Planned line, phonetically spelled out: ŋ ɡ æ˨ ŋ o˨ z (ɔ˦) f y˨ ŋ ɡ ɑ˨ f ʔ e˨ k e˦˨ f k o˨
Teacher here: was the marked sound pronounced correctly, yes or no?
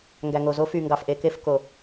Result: no